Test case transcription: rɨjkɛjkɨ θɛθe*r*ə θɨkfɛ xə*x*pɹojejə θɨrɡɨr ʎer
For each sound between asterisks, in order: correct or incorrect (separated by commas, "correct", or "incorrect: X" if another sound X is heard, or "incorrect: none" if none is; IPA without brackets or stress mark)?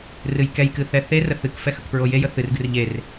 correct, incorrect: k